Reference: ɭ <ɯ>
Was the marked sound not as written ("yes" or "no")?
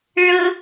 yes